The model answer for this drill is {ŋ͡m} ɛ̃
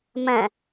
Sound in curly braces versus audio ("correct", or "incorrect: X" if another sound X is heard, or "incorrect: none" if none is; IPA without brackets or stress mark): incorrect: m